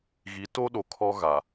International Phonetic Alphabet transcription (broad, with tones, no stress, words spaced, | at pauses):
ɣi˨˦to˦ɗo˨ kʰɔ˦ ɣa˨